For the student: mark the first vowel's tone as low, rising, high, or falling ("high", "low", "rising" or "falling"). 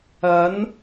rising